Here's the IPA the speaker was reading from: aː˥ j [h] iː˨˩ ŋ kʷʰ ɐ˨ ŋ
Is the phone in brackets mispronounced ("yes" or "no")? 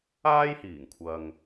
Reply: no